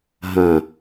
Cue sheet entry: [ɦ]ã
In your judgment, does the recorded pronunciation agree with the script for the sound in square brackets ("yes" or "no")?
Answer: yes